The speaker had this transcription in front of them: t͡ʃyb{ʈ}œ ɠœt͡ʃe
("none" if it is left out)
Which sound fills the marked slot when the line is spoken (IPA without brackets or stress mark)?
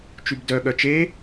d